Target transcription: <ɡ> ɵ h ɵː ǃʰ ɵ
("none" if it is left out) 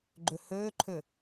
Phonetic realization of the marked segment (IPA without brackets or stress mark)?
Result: ɡ͡ǃ